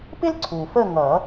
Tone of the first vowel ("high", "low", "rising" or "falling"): high